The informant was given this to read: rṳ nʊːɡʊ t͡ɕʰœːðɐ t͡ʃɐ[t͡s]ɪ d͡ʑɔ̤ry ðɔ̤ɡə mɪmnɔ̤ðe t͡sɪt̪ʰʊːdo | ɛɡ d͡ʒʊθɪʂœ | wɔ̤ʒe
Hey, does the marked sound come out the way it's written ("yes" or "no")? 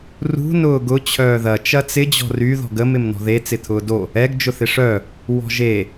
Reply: yes